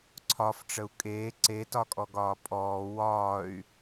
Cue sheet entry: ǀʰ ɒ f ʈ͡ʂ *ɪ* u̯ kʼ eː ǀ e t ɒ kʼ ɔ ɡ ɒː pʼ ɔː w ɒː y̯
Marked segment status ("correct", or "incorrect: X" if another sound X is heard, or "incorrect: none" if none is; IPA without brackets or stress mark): incorrect: ə